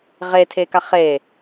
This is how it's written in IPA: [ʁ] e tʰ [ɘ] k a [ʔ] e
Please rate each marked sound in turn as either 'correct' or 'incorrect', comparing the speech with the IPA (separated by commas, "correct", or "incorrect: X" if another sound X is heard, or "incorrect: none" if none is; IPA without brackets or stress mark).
correct, incorrect: e, incorrect: χ